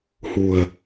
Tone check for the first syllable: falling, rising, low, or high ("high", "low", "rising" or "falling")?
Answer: low